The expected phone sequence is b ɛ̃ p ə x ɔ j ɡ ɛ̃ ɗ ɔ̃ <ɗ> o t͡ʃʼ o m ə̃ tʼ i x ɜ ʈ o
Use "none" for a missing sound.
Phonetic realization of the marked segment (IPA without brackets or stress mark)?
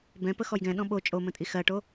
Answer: ɓ